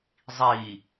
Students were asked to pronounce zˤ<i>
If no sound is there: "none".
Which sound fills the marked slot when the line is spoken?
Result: i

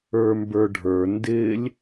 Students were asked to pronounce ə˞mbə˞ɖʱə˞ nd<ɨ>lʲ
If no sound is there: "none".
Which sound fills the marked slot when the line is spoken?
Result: ɪ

